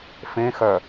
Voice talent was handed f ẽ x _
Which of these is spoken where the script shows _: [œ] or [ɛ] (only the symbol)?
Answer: œ